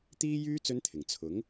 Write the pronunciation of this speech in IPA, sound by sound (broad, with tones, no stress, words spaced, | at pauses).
t̪iː˥jyː˥ t͡sɵ˥nt̪ʰɪ˨˩ŋ t͡sʰʊ˨˥ŋ